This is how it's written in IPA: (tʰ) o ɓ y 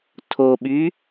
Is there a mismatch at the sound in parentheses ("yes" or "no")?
no